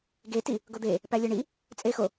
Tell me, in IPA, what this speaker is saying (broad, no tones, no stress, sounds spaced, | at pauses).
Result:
ɡ e t i | ɡ o d̪ e | p æ lʲ e ɳ i | t͡sʼ e x o